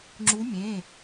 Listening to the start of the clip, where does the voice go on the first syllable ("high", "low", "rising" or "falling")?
rising